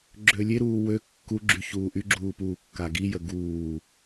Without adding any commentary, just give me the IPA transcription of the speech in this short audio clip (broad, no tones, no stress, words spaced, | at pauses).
ɡ͡ǁølʲeɾuː wø kːuɡ͡ǁy çuːʔyɡ͡ǁuː puːkːaɡijə ɡuː